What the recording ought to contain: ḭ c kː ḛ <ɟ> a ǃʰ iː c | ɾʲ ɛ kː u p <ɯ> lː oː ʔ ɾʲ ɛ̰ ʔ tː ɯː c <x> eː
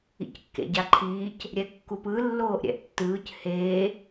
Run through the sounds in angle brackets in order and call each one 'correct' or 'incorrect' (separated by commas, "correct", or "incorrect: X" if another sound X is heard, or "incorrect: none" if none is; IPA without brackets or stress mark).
correct, correct, incorrect: h